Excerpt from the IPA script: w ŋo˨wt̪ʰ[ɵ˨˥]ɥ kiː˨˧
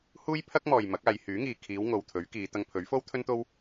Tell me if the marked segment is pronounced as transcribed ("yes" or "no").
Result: yes